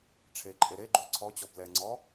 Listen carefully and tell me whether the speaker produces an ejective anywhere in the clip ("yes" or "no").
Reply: yes